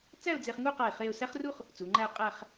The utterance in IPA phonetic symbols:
t͡s æ˥˧ ʊ̯ d͡z e˧ χ ŋ u˥˧ q a˧˩ ɪ̯ χ e˥˧ ʊ̯ s æ˥ χ r u˥ χ | t͡s u˩˧ ŋ͡ǃ æ˥˧ ʊ̯ qʼ æ˥˧ χ

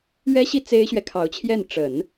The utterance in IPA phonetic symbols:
ɥ ɛ˥ ɕ i˥˩ t͡s e˥ ɪ̯ ɕ ɥ ɛ˨ kʰ ɑ˧˥ ʊ̯ t͡ɕʰ j ɛ˥˩ n ʈ͡ʂ ə˨˩˦ n

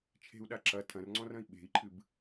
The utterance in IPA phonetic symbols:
t͡ʃʰ e̤ u̯ ɗ a ǁ ɐ tʰ ɐ̃ r ŋ͡ǀ ɔ̃ r ɐ̃ i̯ ɓ e̤ i̯ ǃʰ ɨ b

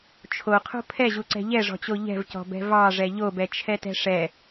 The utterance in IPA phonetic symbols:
t͡ʃʰ o qʰ o̤ pʰ ɛ ʑ u ǀ ɛ̤ ʎ ɛ ʐ ɔ̤ t͡ɕ o ʎ ɛ̤ v c ɔ̤ b ɛ̤ v ɑ ʐ ɛ ʎ o b ɛ t͡ʃʰ ɛ t ɛ̤ ʂ ɛ

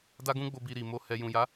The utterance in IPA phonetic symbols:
d a˦ ɡ ũ˦ ɡ͡b o˧ b i˧ ɾ i˨ m o˧ h ɛ˧ j ũ˨ j a˨˦

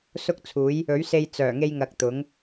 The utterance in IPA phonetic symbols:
s ʊ˥ k̚ t͡sʰ uː˨˥ j | ɵ˨˥ ɥ s e˧ j t͡s œː˨˩ ŋ e˧ j ŋ ɐ˨ k̚ t̪ ʊ˨˥ ŋ

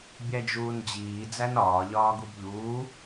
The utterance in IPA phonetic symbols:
bʲ æ d͡ʒ uː n d͡ʑ iː d͡z æ n ɒː ʎ ɒː ɡ u b ʎ uː

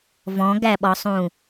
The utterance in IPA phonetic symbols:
v ɔ̃ ɡ æ ɓ ɔ sˤ ũ

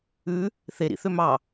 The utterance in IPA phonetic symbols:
ʉ | θ e ɾ ḭ θ ø m ɑ

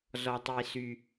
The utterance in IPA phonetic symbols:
z ɔ˨ tˤ i˨ s y˨

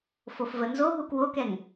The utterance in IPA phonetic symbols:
f o f v ə n z o ɦ u k w o k ɛ ŋ

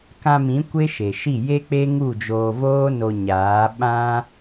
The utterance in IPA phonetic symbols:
k ã˧ m ĩ˨˦ kʷ e˦ ʃ e˨ ʃ i˦˨ j e˦ k͡p e˦ ŋ u˦˨ d͡ʒ oː˧ v oː˦ n o˧ ɲ aː˨˦ ɓ ã˦

